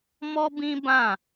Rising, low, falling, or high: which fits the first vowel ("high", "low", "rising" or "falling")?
high